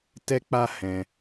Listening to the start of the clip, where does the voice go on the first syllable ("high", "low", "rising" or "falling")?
high